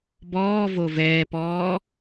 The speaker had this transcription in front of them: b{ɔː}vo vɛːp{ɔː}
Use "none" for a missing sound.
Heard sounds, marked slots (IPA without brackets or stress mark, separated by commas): ɔː, ɔː